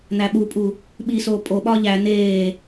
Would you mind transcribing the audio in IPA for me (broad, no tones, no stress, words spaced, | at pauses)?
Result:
n̪æɓupʼu | ɓisoː pʼoɓɒ ʎæ n̪eː